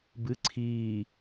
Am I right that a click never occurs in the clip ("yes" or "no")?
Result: no